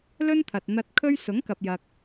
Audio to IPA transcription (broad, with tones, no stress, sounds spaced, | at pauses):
l ɵ˥ n t̪ʰ ɐ˨ t̚ n̪ ɐ˧ t̚ kʰ ɵ˥ ɥ s ʊ˨˥ ŋ k ɐ˨ p̚ j ɐ˨ k̚